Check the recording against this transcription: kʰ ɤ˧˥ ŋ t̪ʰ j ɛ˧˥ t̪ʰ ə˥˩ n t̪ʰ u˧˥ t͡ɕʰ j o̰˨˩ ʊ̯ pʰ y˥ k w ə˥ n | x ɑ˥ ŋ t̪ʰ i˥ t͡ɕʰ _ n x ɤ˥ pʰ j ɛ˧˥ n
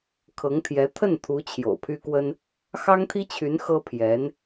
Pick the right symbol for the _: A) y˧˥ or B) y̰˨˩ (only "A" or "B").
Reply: A